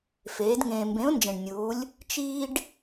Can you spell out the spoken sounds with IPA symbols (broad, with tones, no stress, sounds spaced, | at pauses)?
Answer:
f eː˨˥ d ŋ ẽː˧ m b ẽ˨˥ ʊ̯ n d͡ʒ ẽ˨˩ ɳ nʲ uː˨˥ lʲ | t͡ʃ iː˥ ɖ